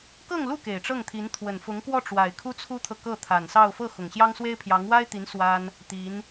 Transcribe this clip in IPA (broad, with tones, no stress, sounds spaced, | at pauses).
k ɤ˥˧ ŋ l u˥˩ k e˨˩ ɪ̯ ʈ͡ʂ ɤ˥˩ ŋ t̪ʰ i˧˥ n t̪ʰ w ə˨˩ n f ʊ˧˥ ŋ k w ɔ˥˩ ʈ͡ʂ w a˨˩ ɪ̯ kʰ u˥ t͡sʰ u˥ t̪ʰ ɤ˨ k ɤ˥˩ t̪ʰ a˨˩ n s ɑ˥˧ ʊ̯ f ɤ˥˩ x ʊ˨˩ ŋ ɕ j ɑ˥ ŋ s w e˥ ɪ̯ pʰ j ɑ˧˥ ŋ w a˥ ɪ̯ t̪ i˧˥ n s w a˥ n | t̪ i˧˥ n